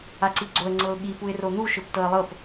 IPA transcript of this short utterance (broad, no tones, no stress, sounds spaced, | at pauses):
a ǀ i ɡ͡ǀ o ə̯ ŋ͡ǀ ɤ ʊ̯ ɠ i p u ɪ̯ r o n̪ u ʃ ɵ p t ɤ ə̯ lˠ ɤ p